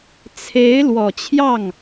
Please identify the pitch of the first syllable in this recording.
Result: rising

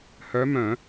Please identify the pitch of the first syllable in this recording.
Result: rising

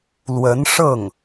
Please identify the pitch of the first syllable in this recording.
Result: rising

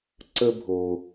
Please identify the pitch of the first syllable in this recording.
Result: high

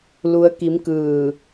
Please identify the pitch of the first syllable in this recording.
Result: rising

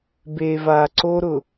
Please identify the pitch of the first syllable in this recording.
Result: low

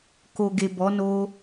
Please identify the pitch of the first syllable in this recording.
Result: low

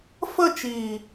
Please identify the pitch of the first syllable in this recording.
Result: falling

